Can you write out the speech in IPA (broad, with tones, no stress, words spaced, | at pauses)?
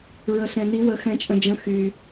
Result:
ɹə˨ɬɛ̃˨ n̪i˨˦ wə˨˦ xɛ̃˨t͡ʃʼə̃˨d͡ʒə̃˨˦ xy˨